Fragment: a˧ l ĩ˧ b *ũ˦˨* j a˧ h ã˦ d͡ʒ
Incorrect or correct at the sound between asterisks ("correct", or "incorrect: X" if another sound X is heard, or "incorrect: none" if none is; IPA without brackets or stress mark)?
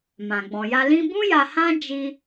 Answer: incorrect: ũ˦